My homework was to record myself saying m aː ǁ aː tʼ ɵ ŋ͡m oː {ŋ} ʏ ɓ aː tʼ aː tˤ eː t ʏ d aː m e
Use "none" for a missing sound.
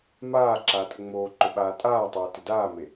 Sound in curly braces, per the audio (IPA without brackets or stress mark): ǃ